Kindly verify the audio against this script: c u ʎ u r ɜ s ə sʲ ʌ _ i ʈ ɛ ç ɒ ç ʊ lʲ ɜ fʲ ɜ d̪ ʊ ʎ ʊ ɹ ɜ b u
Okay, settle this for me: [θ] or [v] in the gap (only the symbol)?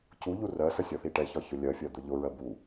θ